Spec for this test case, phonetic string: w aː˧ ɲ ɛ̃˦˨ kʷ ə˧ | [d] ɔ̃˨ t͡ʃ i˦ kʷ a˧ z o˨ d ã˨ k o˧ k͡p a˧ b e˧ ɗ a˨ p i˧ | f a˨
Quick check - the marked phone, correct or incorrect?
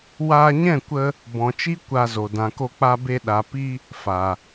incorrect